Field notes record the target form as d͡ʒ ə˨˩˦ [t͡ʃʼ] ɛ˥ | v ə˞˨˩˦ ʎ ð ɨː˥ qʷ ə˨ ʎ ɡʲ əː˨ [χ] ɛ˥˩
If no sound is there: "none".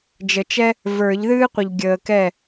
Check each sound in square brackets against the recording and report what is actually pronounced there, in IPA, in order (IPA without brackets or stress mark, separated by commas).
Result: t͡ʃ, k